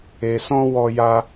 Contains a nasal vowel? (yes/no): yes